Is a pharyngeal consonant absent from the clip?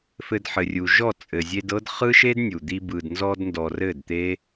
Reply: no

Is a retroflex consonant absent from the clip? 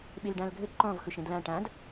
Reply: no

